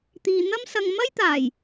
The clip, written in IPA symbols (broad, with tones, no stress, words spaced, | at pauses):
t̪iː˨n̪ɐ˥msɐ˧ŋ mɐ˥jt̪aː˨˩j